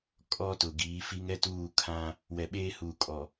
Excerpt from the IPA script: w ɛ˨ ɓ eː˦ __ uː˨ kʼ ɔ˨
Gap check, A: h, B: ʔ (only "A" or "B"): A